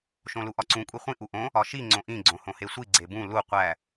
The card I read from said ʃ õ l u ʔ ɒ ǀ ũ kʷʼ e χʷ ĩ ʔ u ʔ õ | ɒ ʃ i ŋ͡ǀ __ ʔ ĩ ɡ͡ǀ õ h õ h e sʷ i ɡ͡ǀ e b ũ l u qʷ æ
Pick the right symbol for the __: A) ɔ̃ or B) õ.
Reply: B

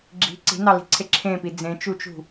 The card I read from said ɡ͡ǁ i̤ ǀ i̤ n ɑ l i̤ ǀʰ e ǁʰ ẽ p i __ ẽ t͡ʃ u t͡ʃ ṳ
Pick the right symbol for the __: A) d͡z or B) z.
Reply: A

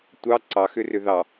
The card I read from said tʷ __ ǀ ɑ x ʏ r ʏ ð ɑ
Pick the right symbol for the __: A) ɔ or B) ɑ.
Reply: B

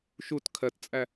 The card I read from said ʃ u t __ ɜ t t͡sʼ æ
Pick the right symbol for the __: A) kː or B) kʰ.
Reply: B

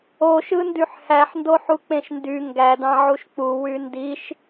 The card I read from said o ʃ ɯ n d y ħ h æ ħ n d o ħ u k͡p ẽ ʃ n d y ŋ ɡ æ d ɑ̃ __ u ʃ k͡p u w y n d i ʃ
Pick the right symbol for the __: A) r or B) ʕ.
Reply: B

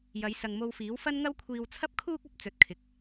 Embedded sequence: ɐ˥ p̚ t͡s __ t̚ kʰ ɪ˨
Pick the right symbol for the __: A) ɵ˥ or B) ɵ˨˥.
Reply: B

